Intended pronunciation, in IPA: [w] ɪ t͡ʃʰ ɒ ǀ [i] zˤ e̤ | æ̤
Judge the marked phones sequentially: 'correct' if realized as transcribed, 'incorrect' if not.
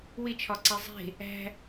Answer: correct, incorrect: e

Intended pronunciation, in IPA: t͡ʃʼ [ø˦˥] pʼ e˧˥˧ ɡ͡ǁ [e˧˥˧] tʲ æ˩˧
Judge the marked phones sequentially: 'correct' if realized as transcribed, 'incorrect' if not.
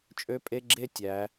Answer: correct, incorrect: e˥˨

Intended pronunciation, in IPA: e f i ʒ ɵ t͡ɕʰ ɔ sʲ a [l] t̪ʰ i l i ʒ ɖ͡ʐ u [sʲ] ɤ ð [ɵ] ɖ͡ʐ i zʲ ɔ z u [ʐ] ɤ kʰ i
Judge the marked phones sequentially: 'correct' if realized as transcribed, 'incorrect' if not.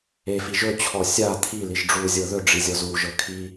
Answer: incorrect: none, incorrect: zʲ, correct, incorrect: ʒ

